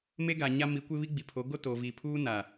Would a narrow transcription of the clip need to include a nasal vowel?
no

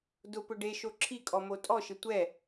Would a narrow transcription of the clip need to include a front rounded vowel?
no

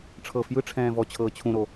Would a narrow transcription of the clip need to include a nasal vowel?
yes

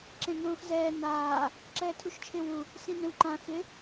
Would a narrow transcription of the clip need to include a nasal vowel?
yes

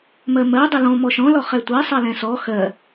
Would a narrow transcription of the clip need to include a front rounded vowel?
no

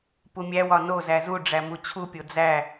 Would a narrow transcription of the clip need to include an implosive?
no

